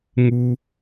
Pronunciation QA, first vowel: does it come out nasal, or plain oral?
oral